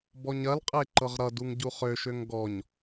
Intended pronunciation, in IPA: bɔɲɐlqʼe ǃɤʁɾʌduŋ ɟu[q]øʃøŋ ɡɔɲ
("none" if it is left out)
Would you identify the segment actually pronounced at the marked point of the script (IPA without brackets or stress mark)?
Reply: χ